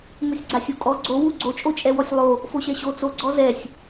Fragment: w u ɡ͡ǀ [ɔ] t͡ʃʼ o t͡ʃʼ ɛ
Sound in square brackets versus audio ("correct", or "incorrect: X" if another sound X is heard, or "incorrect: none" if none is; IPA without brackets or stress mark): incorrect: o